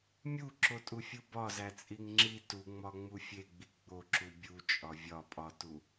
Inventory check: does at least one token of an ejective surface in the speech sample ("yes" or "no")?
yes